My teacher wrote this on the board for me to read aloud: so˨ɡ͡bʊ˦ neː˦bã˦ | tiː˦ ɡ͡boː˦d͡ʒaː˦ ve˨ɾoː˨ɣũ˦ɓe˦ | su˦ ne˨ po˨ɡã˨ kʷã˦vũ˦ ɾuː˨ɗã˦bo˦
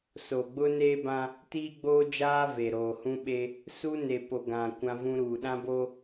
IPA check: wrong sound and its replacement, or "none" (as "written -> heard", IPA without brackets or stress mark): ɣ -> h